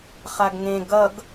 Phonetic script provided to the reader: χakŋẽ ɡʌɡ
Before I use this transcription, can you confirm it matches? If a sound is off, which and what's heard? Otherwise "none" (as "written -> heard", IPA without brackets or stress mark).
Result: k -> ɡ